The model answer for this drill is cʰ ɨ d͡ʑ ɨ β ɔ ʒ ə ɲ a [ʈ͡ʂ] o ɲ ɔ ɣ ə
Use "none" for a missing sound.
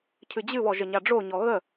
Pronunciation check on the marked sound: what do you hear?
ɖ͡ʐ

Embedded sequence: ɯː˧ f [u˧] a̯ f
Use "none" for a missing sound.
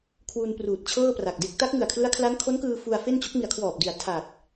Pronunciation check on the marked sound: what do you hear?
u˧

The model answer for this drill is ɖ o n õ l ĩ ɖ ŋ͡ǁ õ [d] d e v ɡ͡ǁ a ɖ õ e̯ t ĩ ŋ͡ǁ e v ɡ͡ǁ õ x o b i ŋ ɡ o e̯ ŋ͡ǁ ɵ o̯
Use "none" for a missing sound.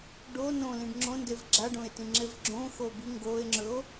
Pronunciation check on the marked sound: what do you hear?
n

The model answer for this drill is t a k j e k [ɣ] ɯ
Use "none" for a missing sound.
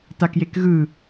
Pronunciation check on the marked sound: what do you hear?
ɣ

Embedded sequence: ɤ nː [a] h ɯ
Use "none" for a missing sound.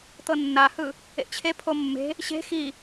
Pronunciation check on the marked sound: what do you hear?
a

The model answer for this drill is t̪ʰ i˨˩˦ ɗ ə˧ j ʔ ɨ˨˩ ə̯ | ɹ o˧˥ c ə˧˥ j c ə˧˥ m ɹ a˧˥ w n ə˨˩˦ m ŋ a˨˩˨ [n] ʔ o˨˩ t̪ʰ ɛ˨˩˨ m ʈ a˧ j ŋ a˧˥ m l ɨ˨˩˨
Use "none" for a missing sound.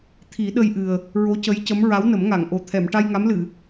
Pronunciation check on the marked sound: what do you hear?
ŋ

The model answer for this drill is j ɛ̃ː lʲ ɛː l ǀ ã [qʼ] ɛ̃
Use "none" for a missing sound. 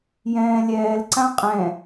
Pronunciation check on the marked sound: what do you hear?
qʼ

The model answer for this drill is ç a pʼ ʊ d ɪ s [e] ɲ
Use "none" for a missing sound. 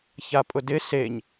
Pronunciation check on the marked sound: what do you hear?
e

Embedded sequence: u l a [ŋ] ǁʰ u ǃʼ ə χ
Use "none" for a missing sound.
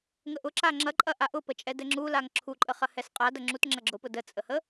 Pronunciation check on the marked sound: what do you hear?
ŋ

